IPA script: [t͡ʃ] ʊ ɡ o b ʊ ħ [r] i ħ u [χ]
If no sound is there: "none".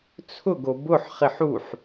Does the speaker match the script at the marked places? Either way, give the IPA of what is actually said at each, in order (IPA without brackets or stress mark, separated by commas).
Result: t͡sʰ, χ, ħ